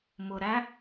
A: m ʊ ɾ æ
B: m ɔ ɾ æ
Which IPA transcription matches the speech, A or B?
A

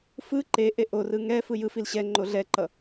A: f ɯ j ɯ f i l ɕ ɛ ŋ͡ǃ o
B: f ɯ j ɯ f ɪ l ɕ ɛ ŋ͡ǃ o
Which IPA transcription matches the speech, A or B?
A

